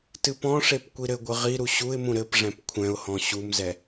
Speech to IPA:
t ɨ p ɔ̃ ʂ e p kʷ i ɾ ɘ ɡʷ ɨ ʁ i ɾ u ɕ u ɪ̯ m ũ ɾ ɘ p ʐ ɛ̃ p kʷʰ ɛ̃ ʊ̯ h ɔ̃ ɕ u m z ɛ

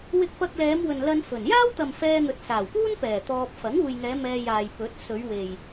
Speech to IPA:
w ɪ˧ k̚ p ɐ˧ k̚ l ɛː˨˧ m w ɵ˨ n l ɐ˧ n f ɵ˨˩ n j aː˥ w t̪ ɐ˨ m f ɛː˧ n̪ ɵ˨ t̚ s aː˨˩ w p uː˥ n p ɛː˨˩ t̪ ɔː˧ p̚ f ɐ˨˥ ŋ uː˨ j ŋ ɛː˨˧ m ɛː˧ j aː˨ j p ɵ˨˥ t̚ s ɵ˨˧ ɥ w e˨ j

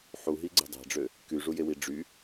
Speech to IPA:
ħ u ɦ i ɡ͡ǀ e̤ dˤ æ̤ ɖ͡ʐ ø | k y ʐ u j e w i ɖ͡ʐ y

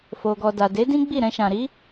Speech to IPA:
f o˨ ɡ ɔ˨ d a˨ d e˨˦ d ĩ˦ ɡ͡b i˦˨ ɾ ɛ̃˧ ʃ ã˨ ɾ i˨˦

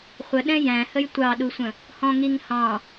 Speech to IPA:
χʷ ə ɗ ɛ̃ j æ̃ h ə j tʷ ɑ ɗ u sʷ ə̃ | h ɔ̃ ŋ i ŋ h ɑ̃

